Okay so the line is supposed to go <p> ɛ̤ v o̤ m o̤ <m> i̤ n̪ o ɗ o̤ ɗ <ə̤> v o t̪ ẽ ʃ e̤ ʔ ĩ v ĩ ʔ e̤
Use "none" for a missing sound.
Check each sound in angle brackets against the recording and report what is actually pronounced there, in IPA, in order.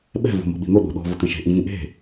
ɓ, ɓ, ɔ̤

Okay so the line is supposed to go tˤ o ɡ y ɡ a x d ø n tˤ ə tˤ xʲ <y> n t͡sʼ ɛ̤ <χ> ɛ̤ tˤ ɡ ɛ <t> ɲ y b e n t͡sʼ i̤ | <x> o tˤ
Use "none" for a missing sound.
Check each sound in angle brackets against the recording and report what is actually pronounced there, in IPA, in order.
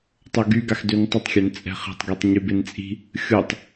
ø, χ, tˤ, xʲ

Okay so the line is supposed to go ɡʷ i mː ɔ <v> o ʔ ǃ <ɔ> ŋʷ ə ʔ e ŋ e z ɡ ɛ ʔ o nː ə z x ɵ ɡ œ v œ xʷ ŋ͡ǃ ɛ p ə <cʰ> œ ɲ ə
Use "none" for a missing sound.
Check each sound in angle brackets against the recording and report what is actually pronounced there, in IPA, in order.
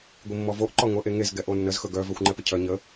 v, ɔ, cʰ

